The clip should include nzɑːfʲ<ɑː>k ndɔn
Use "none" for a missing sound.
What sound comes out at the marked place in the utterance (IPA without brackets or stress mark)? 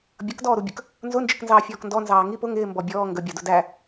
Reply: ɔː